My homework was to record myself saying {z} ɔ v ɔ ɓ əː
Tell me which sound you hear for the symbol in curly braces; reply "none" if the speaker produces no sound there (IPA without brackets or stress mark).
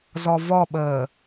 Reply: z